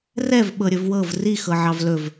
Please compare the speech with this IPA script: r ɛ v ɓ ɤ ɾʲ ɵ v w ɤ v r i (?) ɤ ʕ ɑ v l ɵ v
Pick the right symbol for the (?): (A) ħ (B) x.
B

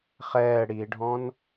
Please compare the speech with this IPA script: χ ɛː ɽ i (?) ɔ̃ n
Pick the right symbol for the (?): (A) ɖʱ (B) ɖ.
A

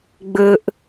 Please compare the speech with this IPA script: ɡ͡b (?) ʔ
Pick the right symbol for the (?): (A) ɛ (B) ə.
B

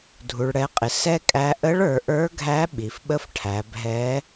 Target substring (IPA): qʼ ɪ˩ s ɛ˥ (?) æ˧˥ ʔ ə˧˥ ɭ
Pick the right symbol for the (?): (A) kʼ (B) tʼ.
A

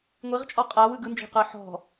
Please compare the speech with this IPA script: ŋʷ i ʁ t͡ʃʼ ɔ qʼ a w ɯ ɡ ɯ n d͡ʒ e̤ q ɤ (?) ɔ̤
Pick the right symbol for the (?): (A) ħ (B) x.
A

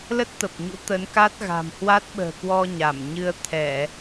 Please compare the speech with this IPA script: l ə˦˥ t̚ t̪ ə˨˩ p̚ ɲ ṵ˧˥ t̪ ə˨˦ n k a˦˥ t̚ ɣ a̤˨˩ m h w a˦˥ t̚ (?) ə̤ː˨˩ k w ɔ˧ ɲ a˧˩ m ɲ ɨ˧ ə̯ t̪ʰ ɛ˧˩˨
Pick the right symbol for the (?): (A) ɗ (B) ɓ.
B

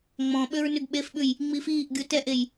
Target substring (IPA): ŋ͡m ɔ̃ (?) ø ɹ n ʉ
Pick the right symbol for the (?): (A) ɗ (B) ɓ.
B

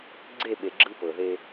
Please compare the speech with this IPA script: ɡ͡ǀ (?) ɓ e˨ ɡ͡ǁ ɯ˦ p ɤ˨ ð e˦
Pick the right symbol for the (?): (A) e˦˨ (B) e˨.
A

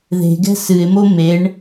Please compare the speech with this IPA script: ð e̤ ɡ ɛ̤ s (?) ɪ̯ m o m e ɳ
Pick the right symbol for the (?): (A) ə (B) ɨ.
B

